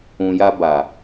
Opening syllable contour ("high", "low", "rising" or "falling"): low